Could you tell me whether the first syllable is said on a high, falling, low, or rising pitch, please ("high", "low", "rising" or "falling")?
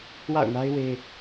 falling